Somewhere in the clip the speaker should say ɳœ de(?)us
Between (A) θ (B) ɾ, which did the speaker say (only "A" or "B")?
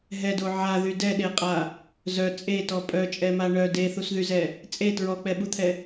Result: A